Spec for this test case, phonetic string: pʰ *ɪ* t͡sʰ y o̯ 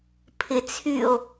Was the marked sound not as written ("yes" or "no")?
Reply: no